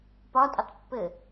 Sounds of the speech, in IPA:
pɒtʼətˤ pːɘ

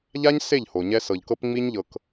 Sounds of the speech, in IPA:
ʎa˦ɲ se˦˨ʎ ho˨ɲɛ˦ sɤ˨ʎkɤ˦pŋ͡mi˦ɲ ʎɤ˨k

